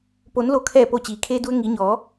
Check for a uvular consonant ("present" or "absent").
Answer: absent